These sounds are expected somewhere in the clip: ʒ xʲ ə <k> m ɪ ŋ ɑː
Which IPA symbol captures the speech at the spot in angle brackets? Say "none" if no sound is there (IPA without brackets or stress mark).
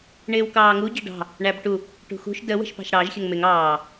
ŋ